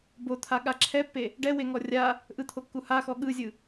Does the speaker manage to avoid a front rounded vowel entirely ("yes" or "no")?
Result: yes